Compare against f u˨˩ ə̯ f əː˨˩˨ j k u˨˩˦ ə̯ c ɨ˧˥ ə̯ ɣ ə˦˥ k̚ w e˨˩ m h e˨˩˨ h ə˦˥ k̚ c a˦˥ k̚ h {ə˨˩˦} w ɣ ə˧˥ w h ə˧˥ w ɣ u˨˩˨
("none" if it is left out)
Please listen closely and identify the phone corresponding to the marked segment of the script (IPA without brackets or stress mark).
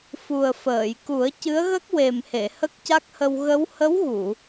ə˧